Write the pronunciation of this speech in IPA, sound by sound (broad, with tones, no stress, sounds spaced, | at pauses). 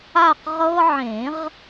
a˦˨ q ʁ ɤ˦ ʕ ẽ˨˩˦ ʁ